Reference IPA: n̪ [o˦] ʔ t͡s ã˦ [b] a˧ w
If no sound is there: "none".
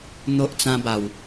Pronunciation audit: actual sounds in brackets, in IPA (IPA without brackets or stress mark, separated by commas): o˦, b